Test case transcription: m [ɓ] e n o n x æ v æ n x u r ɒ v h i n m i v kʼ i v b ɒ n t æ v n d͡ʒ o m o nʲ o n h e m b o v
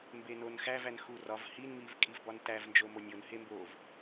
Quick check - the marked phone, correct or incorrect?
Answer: incorrect